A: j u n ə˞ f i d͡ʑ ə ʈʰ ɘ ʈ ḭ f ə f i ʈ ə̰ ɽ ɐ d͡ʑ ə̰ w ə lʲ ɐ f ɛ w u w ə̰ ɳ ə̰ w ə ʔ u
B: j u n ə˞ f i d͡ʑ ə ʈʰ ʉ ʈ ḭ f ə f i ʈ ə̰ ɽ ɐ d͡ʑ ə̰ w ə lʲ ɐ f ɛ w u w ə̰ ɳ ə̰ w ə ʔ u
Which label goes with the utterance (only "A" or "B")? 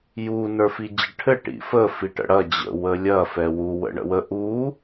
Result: A